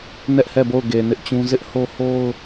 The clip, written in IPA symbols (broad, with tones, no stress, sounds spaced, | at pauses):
n ɛ˦ ʔ h ɛ˦˨ b o˦˨ ʊ̯ ɡ e˨ n ɪ˦ ʔ t͡ɕ ũ˦ z ɪ˦ ʔ h o˦ h o˦ ʊ̯